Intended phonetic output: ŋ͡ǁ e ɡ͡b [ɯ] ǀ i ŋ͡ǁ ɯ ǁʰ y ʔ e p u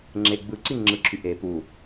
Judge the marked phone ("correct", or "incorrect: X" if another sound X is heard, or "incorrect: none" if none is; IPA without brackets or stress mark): correct